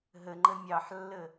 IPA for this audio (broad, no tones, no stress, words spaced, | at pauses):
ɦəŋ͡ǃə mʲɑħlːə